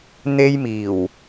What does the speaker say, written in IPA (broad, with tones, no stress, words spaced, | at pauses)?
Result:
n̪e˥jmiː˨˩w